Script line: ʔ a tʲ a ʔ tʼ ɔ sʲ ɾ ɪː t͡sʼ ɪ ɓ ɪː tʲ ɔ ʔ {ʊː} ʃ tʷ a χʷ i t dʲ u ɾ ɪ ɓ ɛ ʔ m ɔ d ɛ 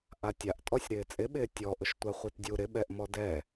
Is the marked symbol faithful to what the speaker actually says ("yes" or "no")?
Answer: no